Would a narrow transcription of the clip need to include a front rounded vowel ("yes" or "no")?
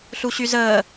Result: yes